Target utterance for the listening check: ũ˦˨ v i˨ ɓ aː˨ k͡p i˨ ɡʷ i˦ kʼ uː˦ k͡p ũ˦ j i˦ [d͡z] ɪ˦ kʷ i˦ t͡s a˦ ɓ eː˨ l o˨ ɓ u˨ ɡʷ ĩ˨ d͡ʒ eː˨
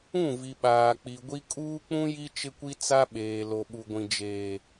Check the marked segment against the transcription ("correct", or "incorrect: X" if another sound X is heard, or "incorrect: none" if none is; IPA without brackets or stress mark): incorrect: t͡ʃ